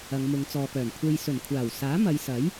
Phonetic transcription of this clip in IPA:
ɐ˨˧ ŋ m ʊ˨˧ ŋ t͡s ɔː˨ k œː˨˩ n kʷʰ e˨ j s ɵ˨˩ n kʷʰ aː˨˩ w s aː˨˥ m ɐ˨˧ j s ɐ˨˥ j

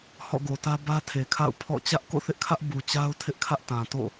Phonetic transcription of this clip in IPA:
h ɔ̰˦˨ ɡ o˨ t ä˦ b ä˦ tʰ e˨ kʰ a̰˦˨ ʊ̯ pʰ ɔ̰˦˨ t͡ɕ ä˦ ʔ k o̰˦˨ θ ɪ˦ ʔ kʰ ä˦ ʔ b u˨ t͡ɕ a˦ ʊ̯ tʰ ɪ˦ ʔ kʰ ä˦ ʔ t ã˨ t o̰˦˨

